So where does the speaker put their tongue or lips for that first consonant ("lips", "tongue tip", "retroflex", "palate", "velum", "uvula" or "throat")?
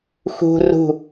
velum